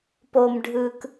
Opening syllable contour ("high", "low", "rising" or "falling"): low